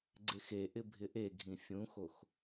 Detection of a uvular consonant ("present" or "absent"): absent